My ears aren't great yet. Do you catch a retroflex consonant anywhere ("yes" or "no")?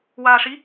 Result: yes